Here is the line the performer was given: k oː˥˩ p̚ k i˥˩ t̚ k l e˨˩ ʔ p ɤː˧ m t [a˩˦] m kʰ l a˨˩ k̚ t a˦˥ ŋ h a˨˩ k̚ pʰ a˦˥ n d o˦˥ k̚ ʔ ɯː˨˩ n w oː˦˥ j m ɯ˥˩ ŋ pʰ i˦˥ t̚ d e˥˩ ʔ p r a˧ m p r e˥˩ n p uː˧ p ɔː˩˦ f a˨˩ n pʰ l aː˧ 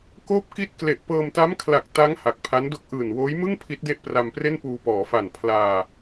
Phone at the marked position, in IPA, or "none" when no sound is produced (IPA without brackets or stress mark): a˦˥